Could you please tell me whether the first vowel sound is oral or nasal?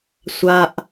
oral